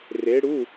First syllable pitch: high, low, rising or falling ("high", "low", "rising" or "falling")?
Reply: rising